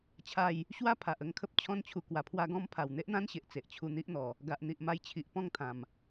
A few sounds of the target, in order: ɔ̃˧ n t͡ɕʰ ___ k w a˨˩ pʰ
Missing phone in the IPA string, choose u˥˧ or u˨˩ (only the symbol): u˨˩